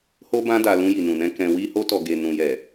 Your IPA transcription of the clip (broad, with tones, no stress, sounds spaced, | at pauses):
h o˦ b ã˦ d a˧ l ũ˧ j i˨ n ũ˨ n ɛ̃˧ k ɛ̃˧ w i˧ h o˧ t ɔ˨ ɡ e˨ n ũ˨ j ɛ˨